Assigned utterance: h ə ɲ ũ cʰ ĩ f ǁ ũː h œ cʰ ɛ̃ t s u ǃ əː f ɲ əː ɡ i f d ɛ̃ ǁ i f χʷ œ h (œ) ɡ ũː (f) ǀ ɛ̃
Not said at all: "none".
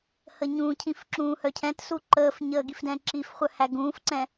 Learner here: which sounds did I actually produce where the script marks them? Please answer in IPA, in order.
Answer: æ, f

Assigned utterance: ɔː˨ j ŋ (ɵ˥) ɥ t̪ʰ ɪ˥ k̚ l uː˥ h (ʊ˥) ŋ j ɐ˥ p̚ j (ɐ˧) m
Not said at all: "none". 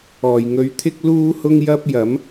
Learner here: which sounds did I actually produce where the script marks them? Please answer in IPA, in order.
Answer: ɵ˧, ʊ˥, ɐ˨˥

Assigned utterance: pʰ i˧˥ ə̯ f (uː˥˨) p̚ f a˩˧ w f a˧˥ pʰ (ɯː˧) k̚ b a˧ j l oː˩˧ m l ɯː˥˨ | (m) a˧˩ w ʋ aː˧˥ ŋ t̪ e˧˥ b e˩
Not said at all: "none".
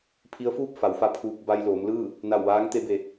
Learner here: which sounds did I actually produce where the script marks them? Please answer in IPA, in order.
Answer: uː˥˨, uː˧, n

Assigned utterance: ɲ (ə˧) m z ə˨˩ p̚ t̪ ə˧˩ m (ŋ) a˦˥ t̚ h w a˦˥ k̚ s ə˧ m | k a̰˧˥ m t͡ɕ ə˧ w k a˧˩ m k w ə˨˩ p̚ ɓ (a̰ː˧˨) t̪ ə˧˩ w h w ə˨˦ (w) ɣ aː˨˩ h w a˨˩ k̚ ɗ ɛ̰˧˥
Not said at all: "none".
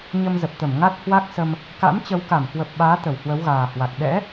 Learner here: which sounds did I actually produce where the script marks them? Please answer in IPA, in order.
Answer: ə˧, ŋ, aː˨˦, w

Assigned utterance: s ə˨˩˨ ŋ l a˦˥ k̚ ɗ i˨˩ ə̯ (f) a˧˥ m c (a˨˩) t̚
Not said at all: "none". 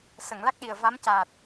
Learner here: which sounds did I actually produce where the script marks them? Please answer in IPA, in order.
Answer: v, aː˨˩

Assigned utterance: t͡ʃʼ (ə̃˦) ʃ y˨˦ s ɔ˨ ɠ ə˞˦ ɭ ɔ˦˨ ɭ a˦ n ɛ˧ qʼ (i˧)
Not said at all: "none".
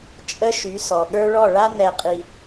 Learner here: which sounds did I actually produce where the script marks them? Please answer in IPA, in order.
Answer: ə˦, i˧

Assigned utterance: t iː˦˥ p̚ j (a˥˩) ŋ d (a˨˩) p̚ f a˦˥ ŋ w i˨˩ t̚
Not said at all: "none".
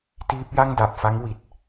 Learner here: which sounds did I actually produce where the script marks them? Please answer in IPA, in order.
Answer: a˥˩, a˨˩

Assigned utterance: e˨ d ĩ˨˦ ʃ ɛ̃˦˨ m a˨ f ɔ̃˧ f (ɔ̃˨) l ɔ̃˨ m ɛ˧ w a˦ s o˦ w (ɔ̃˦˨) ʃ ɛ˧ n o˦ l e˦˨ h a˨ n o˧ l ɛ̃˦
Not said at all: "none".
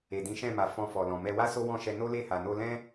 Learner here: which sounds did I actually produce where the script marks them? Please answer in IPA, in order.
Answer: ɔ˨, ɔ̃˦˨

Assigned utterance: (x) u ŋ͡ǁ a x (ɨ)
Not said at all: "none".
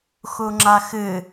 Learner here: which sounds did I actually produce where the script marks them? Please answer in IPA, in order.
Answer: x, ɨ

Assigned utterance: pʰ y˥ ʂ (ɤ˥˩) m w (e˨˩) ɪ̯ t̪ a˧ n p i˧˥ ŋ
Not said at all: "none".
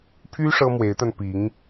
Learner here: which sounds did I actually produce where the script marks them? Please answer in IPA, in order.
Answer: ɤ˥, e˧˥

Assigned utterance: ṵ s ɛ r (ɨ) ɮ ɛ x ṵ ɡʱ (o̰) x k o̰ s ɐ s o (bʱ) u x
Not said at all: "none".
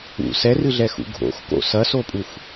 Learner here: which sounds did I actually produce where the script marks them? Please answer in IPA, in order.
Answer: ɨ, o̰, pʼ

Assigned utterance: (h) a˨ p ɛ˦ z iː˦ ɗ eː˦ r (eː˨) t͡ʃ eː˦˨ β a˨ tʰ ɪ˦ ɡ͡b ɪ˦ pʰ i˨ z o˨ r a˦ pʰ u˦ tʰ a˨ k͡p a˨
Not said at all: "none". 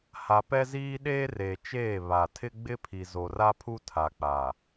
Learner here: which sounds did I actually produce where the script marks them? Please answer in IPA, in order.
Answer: h, eː˨

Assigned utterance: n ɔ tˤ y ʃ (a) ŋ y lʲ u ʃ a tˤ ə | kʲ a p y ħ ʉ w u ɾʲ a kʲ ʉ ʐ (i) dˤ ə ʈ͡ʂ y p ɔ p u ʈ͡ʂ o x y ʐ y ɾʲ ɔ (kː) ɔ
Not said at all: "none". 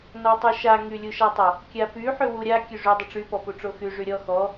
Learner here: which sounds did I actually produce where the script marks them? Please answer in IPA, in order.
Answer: a, y, x

